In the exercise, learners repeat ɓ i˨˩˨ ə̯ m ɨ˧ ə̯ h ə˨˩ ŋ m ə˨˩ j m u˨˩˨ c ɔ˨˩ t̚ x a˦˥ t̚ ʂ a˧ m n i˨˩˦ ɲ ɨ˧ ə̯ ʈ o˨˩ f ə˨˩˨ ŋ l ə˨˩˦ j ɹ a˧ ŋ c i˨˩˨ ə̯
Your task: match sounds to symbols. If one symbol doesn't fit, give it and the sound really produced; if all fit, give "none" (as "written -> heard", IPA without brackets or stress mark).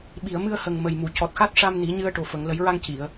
none